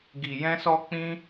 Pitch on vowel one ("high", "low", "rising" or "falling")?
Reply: low